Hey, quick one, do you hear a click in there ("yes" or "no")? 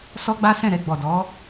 no